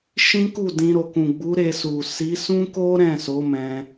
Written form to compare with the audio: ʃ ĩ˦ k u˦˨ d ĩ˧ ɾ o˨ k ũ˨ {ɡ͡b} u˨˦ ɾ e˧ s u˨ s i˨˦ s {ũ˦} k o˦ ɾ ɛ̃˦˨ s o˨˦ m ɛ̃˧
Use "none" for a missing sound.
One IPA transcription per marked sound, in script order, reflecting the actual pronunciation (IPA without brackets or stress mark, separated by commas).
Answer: ɡ͡b, ũ˦